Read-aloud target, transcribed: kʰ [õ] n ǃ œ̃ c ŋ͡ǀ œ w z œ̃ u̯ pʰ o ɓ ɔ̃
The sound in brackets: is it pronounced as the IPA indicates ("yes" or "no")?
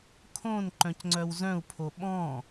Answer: yes